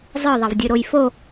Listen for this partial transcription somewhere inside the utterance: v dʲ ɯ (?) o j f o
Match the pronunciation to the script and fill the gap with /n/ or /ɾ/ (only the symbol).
ɾ